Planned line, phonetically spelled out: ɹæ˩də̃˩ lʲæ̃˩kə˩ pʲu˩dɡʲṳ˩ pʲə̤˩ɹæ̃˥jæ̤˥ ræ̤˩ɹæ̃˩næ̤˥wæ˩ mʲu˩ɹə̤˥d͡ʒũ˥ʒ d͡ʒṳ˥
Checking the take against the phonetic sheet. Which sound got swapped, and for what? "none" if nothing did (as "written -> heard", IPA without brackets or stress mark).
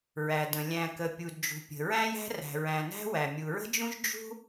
ɡʲ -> d͡ʒ